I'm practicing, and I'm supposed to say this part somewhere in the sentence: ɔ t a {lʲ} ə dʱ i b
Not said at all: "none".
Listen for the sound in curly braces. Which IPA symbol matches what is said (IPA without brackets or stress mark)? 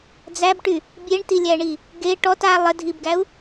lˠ